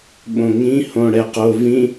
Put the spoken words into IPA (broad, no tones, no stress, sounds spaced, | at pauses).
ɓ õ ŋ ĩ h õ ɽ ɛ q o v ĩ